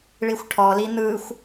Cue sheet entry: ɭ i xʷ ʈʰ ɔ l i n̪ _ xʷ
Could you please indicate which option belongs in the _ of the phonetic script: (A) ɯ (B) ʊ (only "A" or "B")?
A